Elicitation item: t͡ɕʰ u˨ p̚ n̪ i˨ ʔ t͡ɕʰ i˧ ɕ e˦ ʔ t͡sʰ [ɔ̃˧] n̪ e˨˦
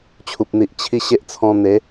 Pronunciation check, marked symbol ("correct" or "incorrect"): correct